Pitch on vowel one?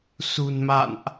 low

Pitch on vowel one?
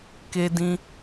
high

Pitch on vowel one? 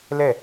falling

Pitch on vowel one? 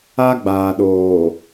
high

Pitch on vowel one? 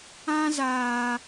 high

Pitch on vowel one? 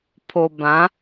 low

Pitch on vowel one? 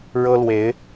high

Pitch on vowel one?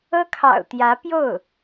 high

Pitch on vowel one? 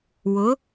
rising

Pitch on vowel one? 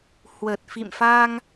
low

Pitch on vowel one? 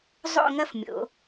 falling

